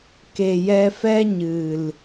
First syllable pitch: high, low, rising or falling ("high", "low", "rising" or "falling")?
low